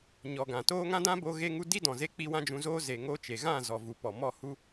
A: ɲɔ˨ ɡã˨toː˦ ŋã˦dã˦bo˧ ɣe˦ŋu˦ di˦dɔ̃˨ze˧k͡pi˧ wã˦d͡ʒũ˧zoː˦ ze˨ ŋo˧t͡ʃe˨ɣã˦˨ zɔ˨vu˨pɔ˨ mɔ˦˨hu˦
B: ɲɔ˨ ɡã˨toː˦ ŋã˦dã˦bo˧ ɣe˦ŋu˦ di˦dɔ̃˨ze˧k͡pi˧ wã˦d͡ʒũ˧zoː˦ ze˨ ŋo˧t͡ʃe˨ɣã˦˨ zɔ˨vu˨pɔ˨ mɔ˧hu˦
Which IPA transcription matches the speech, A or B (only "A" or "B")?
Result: A